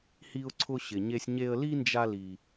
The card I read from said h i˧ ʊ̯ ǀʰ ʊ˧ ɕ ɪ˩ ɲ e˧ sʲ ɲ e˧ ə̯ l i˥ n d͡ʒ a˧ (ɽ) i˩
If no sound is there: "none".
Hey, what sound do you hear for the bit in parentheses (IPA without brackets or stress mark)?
l